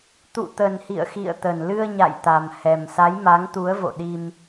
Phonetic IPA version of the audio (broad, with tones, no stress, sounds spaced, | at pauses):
t̪ ṵ˧˨ t̪ ə˨˩ n h ḭ˧˨ ə̯ x ḭ˧˨ ə̯ t̪ ə˨˩ n l ɨ˧ ə̯ ɲ a̰˧˨ j t̪ a˨˩ m h ɛ˨˩ m s a˨˦ j m a˨˦ ŋ t̪ u˨˦ ə̯ v o̰˧˨ ɗ i˧ m